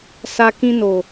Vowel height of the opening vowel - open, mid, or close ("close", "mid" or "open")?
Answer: open